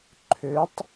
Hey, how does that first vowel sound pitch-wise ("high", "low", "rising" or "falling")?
rising